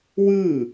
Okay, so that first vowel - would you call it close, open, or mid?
close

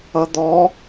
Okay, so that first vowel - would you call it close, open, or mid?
mid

